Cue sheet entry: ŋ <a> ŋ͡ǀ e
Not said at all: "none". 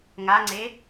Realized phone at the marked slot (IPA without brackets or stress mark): a